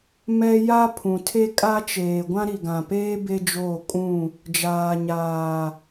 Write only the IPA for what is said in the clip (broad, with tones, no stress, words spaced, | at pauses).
mɛ˦ ja˦ pʰũ˨tʰe˦ kʼa˦t͡ʃeː˨ ɡʷã˦ɾi˨ɡã˨peː˦ be˦d͡ʒoː˦˨kʼũ˦˨ | d͡ʒaː˨ɲaː˨